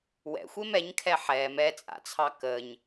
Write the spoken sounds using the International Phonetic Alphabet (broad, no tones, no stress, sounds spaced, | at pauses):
w ɛ̰ xʷ e m ɛ ɲ kʰ ɛ ħ ɛː m ɛ t͡sʼ a̰ t͡sʰ ɑ k əː ɲ